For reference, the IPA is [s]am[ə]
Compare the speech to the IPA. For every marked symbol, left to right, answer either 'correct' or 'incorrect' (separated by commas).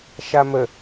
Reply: incorrect, correct